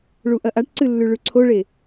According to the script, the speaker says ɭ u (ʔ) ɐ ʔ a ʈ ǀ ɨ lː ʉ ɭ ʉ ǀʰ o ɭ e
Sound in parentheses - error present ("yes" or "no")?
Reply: no